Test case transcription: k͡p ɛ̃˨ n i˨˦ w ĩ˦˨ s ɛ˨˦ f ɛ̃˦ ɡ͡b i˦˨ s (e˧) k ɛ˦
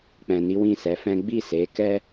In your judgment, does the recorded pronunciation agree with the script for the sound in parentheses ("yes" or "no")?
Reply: no